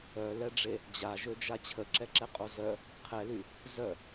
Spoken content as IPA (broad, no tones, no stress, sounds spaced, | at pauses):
œ l ɛ ɖ͡ʐ e | d͡ʑ a ʒ ø d͡ʒ a t͡ɕʰ ə ǁ ɛ ǁ ɛ qʼ o z œ | qʰ ɛ l y | z œ